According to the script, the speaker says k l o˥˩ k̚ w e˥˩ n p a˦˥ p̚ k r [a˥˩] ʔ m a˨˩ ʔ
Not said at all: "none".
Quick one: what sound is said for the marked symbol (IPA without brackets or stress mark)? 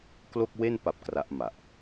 a˦˥